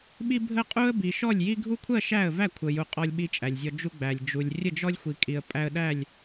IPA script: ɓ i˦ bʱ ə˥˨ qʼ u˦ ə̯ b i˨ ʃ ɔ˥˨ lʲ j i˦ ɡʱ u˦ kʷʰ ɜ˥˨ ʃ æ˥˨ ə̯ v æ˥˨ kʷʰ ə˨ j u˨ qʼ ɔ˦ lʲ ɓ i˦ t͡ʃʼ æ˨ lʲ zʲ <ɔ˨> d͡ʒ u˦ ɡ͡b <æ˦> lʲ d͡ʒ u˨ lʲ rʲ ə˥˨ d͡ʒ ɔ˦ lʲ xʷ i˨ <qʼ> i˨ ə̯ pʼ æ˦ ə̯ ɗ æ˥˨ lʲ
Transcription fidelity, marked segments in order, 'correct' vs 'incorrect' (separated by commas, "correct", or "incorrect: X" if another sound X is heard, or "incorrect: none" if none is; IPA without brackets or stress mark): incorrect: ɔ˦, incorrect: æ˨, incorrect: kʼ